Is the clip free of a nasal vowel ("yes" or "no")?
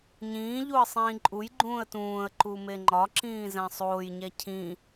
no